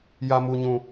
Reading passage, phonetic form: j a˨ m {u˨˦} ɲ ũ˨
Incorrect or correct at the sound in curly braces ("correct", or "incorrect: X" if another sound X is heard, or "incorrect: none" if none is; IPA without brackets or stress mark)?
incorrect: u˨